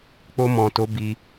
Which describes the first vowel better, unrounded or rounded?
rounded